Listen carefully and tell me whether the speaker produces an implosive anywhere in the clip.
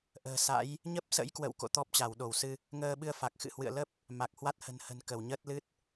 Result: yes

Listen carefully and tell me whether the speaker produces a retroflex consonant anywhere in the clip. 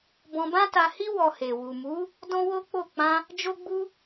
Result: no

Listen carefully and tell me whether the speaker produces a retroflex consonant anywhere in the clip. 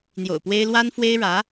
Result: yes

